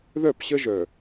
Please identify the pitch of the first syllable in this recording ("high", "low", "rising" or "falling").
falling